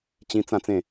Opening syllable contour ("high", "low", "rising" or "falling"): high